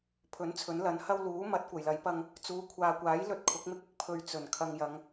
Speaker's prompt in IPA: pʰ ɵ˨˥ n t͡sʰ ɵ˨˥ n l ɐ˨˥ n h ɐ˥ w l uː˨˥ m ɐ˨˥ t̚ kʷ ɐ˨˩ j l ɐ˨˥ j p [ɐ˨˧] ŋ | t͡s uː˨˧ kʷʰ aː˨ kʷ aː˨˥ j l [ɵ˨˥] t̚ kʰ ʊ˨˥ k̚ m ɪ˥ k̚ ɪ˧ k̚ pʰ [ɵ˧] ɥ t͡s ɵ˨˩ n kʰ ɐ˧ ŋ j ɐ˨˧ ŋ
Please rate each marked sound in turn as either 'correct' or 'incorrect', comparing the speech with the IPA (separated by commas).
incorrect, incorrect, correct